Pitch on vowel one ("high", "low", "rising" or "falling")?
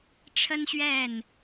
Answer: high